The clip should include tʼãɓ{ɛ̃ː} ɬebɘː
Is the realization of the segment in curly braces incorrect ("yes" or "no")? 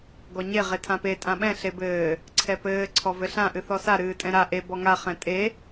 yes